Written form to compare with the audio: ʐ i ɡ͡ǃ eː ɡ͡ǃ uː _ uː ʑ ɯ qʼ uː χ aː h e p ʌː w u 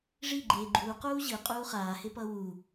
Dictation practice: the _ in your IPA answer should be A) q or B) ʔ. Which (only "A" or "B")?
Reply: A